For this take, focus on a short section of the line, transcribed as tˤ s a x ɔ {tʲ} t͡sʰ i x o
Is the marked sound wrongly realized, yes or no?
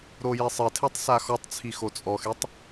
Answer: yes